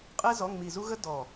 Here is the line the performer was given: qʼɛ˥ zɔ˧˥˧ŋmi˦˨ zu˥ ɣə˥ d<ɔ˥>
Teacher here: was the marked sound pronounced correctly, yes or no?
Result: no